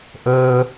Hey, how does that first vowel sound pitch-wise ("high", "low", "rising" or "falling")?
high